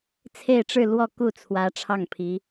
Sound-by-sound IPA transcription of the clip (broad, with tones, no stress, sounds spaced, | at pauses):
t͡sʰ e˥˧ ɪ̯ ʈ͡ʂ ɻ̩˥˧ l w ɔ˥˧ k u˥˩ t͡sʰ w ä˧˥ ʈ͡ʂʰ ɑ˥˩ ŋ pʰ i˧˥